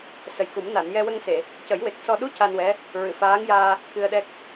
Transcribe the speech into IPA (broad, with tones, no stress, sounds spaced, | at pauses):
s ə˨˩ j k u˨˩˦ m n a˨˩˨ n j ɛ˧ w ə˧ ŋ s e˨˩˨ | c ə˨˩˦ j w e˨˩ k̚ s ɔ˧ ɗ u˧˥ c a˧ n w ɛ˧˥ | ɹ ɨ˨˩˨ f aː˧˥ ŋ j aː˧ | k ɨ˧ ə̯ ɗ ɛ˦˥ k̚